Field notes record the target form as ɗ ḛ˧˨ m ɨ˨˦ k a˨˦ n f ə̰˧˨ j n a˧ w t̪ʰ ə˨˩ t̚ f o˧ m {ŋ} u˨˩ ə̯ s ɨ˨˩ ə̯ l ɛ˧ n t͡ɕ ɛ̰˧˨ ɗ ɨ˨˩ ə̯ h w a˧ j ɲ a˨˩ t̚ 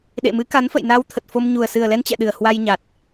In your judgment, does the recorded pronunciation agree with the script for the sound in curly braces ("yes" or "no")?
no